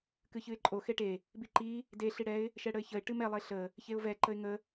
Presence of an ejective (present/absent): present